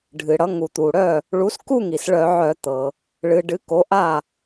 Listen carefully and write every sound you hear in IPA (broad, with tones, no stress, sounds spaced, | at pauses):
ɖʱ ɨ˩ ɽ ʌ˩˥ ŋ u˩ t̪ u˩ ɽ œ˥˩ | ɭ u˩˥ s k u˥˧ ŋ i˩ s ɭ œ˧˩˧ ʕ œ˧˩˧ t̪ ɤ˩ | ɭ ɨ˩˧ ɖ ɨ˩˥ k o˩˥ ʔ a˥˩